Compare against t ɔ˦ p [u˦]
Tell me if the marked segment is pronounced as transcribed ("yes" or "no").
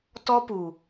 no